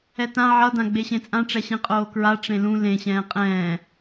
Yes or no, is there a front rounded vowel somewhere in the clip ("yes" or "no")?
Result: no